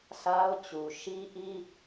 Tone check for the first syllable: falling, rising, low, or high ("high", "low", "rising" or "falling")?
high